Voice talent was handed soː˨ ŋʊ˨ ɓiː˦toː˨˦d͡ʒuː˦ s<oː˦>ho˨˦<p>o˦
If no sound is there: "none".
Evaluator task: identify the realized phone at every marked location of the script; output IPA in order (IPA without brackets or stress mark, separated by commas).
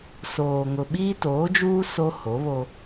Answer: o˦, β